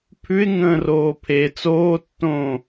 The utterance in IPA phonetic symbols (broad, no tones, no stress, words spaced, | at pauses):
pʰʉɪ̯ŋə̃ːroː pʰe t͡soːtːõː